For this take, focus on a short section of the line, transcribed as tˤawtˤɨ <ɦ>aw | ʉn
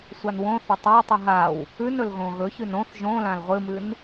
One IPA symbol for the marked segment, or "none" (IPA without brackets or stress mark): ɦ